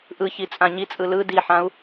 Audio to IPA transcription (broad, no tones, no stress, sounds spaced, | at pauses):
ʔ ɯ ç i t͡sʼ ã ɲ i t͡sʼ ɯ l ɯ d i ħ ã u̯